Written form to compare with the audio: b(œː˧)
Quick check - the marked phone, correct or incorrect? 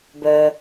correct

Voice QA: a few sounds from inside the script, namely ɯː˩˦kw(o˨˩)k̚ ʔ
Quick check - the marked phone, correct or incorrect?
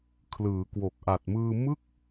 correct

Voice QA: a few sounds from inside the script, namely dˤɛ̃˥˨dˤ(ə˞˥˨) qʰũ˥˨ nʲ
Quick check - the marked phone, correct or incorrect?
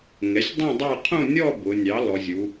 correct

